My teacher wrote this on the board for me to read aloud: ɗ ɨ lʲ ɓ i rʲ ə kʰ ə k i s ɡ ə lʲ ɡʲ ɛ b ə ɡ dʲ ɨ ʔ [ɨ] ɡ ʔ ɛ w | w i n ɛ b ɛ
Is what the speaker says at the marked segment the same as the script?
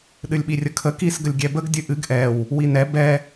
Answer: yes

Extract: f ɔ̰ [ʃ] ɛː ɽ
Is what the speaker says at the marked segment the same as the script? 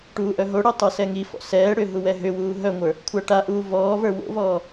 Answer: no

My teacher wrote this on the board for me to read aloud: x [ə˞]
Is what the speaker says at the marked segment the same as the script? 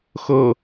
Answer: no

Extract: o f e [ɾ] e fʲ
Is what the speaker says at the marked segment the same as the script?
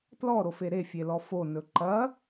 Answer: yes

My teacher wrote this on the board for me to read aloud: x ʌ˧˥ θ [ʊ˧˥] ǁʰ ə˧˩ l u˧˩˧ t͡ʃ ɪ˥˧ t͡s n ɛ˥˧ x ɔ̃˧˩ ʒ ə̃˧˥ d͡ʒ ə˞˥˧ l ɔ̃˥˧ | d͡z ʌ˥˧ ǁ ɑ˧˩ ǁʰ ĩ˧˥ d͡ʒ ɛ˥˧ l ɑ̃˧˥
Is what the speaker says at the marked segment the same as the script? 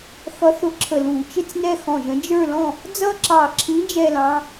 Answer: no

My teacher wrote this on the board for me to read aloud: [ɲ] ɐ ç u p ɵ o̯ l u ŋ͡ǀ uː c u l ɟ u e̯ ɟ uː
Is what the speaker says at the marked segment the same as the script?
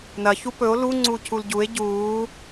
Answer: no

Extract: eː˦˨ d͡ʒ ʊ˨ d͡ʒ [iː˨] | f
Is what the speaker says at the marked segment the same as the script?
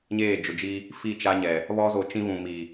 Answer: no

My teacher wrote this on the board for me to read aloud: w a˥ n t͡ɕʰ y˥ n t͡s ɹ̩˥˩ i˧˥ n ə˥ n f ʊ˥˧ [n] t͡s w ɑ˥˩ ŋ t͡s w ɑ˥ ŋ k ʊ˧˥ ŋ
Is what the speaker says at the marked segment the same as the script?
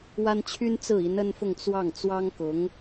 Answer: no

